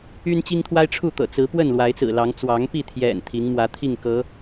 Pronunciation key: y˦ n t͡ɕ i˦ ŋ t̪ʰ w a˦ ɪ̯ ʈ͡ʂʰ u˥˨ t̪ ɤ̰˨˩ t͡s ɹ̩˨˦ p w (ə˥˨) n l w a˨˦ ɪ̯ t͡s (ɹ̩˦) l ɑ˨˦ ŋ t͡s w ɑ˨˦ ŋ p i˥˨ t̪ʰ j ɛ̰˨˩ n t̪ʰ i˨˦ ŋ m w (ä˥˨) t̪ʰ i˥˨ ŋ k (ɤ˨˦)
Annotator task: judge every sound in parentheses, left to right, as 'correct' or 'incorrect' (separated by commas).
correct, incorrect, incorrect, correct